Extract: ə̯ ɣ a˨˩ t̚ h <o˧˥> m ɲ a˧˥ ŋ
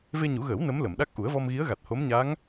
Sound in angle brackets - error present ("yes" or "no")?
no